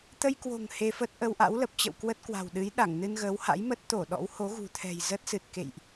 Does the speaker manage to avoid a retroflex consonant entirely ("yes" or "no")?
yes